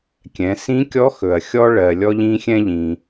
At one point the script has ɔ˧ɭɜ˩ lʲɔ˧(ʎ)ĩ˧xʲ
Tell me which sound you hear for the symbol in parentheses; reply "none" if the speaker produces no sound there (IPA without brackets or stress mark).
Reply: ʎ